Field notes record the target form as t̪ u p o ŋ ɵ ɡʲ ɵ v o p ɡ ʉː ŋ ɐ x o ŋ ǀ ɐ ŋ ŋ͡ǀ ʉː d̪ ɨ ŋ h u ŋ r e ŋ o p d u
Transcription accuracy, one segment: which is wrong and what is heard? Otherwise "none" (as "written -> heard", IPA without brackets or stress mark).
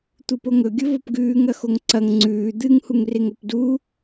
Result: none